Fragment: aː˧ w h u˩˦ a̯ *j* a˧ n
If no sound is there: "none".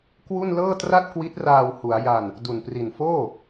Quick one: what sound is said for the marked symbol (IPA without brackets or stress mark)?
j